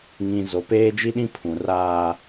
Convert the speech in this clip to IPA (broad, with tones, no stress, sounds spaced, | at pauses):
ŋ ĩ˨ z o˨ p eː˦ d͡ʒ i˦ ɗ ĩ˦ pʰ ũ˨ r aː˦